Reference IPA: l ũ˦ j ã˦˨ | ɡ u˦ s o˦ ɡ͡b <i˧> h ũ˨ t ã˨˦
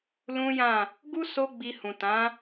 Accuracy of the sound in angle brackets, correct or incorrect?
correct